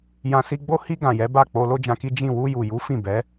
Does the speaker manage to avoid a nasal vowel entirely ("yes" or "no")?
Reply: no